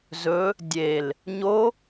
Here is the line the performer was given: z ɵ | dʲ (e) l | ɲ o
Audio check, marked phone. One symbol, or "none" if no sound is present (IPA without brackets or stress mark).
e